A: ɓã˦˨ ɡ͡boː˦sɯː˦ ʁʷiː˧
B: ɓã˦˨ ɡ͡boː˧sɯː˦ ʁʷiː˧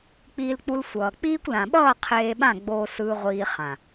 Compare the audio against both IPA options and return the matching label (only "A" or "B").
A